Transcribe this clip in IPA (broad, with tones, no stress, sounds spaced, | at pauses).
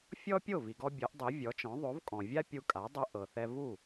fʲ ɔ˥ pʲ o˥˩ v i˩ ɡ ɔ˧ bʲ ɤ˩˥ ʔ dˤ i˩˥ vʲ ɔ˩˥ t͡ʃ ɔ̃˩˥ ðˤ o˩˥ v kʼ ɔ̃˩ vʲ a˥ pʲ u˧ kʼ a˩˥ dˤ ɯ˧ ʔ ɤ˩ θ ɛ˧ v u˥˩